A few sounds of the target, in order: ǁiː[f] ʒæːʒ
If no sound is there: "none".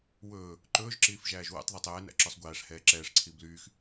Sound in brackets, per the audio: f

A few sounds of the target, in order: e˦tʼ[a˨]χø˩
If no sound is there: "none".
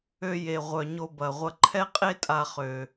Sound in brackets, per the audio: a˨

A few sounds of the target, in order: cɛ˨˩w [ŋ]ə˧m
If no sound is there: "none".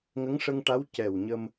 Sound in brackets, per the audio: ɲ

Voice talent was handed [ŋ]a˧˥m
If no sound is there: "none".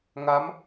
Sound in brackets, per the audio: ŋ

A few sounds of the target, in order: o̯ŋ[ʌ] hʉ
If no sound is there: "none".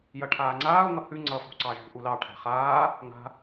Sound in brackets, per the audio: ʌ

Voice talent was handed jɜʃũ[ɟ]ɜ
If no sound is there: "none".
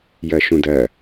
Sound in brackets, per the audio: d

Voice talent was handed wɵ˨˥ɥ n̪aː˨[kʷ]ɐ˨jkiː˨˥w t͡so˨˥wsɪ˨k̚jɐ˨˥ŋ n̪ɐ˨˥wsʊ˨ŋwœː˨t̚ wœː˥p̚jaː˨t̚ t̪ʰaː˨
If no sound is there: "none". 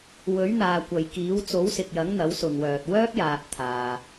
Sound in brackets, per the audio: kʷ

